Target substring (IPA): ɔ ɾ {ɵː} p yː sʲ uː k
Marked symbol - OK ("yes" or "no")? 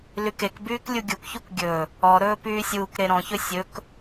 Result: yes